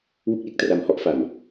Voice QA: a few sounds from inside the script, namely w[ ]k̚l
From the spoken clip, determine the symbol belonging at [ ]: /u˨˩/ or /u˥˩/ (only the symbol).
u˥˩